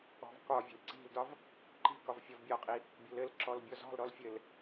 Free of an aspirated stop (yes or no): yes